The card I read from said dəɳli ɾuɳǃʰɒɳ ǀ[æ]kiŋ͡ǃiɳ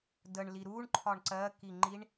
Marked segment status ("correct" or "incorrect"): incorrect